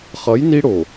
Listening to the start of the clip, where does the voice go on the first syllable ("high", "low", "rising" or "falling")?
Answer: rising